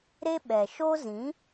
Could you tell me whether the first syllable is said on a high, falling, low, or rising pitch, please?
high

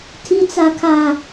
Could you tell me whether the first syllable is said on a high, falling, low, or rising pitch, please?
low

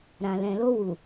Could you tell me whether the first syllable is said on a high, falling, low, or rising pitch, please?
low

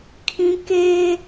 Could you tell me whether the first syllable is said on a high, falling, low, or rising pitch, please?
high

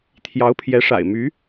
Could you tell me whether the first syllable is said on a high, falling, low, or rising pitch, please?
rising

